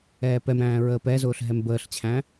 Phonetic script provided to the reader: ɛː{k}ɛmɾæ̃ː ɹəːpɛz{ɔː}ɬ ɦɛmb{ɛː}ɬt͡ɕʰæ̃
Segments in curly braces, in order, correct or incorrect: incorrect: p, incorrect: ʊː, incorrect: əː

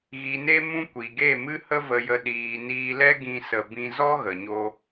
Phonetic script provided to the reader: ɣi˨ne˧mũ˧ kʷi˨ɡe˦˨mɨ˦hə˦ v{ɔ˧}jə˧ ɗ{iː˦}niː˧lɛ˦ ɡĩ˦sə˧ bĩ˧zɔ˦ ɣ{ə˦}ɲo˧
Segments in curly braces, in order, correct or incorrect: incorrect: ə˧, incorrect: iː˨, incorrect: ə˨

